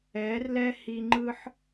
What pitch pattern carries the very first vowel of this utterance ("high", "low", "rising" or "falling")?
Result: rising